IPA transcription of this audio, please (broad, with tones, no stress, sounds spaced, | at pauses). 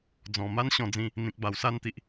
d͡z ɔ̃˨˩ m a˦ n ɕ ɔ̃˧ d͡z ĩ˧ | n̪ ĩ˨ k̚ b a˨˩ w s a˧ n t̪ i˨ ʔ